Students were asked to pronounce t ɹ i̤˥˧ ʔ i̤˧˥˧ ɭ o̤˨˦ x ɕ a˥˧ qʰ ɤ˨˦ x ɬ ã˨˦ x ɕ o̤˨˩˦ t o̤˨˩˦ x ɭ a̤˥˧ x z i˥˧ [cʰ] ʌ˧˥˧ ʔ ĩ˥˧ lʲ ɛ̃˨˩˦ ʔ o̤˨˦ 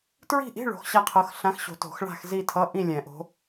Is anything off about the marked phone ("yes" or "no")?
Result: yes